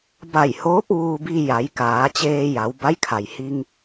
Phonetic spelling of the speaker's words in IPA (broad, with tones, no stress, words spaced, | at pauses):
ba˧˩jhoː˧˥p̚ ʋuː˧bi˧ ja˩˧jkaː˩˧t͡ɕeː˧ ja˩˧wba˧˥jkʰa˩j hi˧ŋ